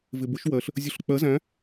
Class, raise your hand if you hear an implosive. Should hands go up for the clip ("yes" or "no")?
no